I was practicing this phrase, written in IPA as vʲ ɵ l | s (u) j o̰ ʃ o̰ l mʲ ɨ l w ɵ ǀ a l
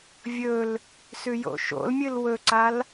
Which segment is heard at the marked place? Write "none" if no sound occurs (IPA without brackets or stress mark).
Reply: ʉ